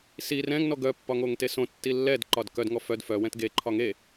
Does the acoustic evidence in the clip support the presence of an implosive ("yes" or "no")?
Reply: no